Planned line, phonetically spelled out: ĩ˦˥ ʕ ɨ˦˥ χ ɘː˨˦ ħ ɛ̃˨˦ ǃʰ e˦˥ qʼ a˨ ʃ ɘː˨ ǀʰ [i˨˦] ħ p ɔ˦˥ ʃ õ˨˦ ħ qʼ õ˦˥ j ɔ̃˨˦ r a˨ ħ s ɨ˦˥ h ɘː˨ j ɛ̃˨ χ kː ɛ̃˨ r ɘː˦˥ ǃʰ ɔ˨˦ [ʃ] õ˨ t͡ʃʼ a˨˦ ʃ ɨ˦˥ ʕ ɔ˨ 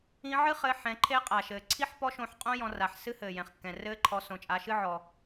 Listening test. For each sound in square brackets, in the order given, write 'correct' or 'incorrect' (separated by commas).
incorrect, incorrect